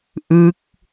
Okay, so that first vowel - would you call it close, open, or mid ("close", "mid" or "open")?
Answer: close